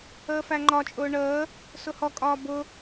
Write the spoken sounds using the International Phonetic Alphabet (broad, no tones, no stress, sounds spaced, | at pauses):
əː f æ ŋ͡ǃ ɒ t͡ʃʼ ʊː ɳ əː | s ʊ h ɔ kʼ ɒː b ʊ